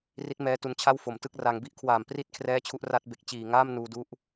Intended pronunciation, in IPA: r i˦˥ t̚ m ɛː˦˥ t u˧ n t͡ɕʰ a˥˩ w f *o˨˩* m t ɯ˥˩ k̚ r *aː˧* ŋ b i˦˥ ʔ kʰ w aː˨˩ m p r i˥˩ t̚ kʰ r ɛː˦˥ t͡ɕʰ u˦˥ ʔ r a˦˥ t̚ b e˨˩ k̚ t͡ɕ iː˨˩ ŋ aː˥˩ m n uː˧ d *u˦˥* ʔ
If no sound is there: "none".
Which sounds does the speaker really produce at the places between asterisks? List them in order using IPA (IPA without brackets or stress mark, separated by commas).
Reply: o˨˩, a˧, u˦˥